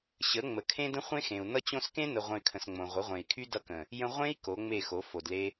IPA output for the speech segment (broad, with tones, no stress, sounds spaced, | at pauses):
ɕ ə˨˦ ŋ͡m ə˨ kʰ ẽ˦ d ə̃˦ χʷ ẽ˦ x ẽ˨ u̯ n ʌ˧ t͡ɕ õ˧ s k ẽ˦ n ə˧ ʁʷ ə̃˧ y̯ kʰ ə̃˨ s ŋ͡m õ˨ ʁʷ ə˨˦ ʁʷ ẽ˨ i̯ kʰ y˦ d ʌ˧ k ə̃˨ | j ə̃˦ ʁʷ ẽ˦ i̯ k o˨˦ ŋ͡m e˦˨ x o˨˦ f o˨ d l e˦